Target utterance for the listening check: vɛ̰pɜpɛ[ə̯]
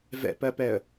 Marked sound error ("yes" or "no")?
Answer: no